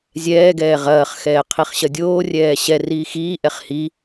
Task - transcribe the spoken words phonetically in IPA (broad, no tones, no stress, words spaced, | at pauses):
zʲɛːɡɛː ʁɐːχxɛːqʰiχɕɐ dʲoːrʲɛː ɕɛriː xiːʔɛχ hi